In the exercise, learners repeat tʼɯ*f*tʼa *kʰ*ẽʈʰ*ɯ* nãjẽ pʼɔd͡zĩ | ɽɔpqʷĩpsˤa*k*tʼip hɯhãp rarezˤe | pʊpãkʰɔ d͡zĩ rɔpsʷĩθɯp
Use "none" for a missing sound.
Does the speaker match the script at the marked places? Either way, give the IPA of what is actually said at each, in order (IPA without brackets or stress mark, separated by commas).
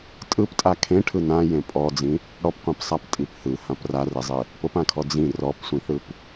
p, kʰ, ɯ, p